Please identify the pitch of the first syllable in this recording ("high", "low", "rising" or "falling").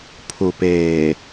low